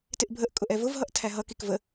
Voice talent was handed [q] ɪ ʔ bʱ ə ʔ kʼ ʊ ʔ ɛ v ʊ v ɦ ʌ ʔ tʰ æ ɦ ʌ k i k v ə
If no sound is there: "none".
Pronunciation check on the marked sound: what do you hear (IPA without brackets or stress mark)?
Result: t